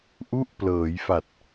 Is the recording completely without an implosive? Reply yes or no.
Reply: yes